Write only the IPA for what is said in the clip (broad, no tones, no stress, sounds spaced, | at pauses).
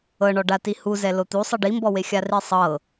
ɤ ɳ ɔ ɖ a t i h u z ɛ l o t̪ u sˤ ɯ ɖ i m b ɔ w e xʲ a r i sˤ ɤ